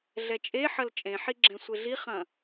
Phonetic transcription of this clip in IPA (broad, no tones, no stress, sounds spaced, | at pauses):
ɮ ɛ t͡ʃʼ e ħ ɐ l t͡ʃʼ ẽ ħ i ɡ͡ǁ ɛ̃ sʷ e ɮ i χ ɐ̃